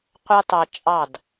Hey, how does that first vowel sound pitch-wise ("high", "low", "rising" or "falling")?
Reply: high